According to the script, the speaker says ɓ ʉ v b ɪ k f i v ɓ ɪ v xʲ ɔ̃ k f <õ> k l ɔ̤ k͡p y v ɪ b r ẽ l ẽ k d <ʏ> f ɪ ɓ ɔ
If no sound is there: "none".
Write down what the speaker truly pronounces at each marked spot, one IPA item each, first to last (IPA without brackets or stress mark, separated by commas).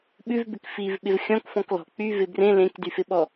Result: ɔ̃, y